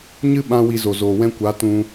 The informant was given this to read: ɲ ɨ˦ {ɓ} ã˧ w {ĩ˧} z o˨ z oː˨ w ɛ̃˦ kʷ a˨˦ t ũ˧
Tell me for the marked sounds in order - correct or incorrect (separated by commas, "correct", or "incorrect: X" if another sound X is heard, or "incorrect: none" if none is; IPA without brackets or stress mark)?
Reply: correct, incorrect: i˧